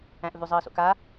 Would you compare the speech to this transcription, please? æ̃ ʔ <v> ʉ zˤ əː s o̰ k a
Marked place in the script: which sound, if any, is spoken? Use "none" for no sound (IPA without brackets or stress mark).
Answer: v